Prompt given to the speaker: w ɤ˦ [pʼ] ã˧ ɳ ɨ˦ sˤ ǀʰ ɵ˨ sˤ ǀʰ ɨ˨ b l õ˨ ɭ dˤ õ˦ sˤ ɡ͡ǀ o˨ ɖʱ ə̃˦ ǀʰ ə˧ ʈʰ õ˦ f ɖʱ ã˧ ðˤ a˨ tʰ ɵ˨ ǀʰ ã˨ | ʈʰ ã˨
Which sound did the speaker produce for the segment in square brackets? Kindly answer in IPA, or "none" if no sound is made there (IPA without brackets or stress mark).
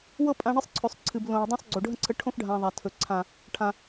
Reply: pʼ